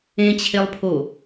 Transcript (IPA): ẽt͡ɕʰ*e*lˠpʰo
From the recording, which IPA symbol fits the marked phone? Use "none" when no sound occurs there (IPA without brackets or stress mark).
e